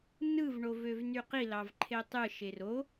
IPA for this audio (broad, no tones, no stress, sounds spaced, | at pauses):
n ɯ v ɳ o v ø v n y q i l ɑ v ǃʰ e tˤ ɯ ʃ e r o